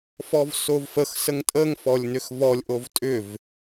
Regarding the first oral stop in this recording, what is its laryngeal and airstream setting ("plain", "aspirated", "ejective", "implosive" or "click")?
ejective